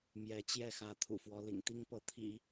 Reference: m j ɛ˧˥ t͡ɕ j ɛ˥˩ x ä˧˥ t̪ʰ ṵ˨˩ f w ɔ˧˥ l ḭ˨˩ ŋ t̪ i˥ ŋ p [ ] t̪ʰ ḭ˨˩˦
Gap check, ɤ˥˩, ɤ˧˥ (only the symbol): ɤ˧˥